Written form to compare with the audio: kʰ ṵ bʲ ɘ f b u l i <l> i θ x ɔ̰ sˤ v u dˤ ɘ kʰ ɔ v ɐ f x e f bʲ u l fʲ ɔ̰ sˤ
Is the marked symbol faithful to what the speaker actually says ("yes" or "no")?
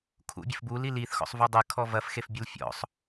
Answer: yes